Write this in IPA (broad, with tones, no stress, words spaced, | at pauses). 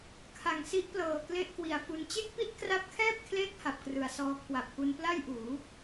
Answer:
kʰa˨˩ŋsi˦˥ʔplɤː˨˩ kle˥˩ʔkwi˨˩a̯fu˧n t͡ɕe˥˩k̚pi˥˩t̚kra˦˥p̚kʰɛː˥˩p̚ kʰleː˦˥k̚ ha˨˩p̚krɯ˩˦a̯ sɔː˦˥ kʰwa˨˩p̚ku˧npla˥˩jʔuː˩˦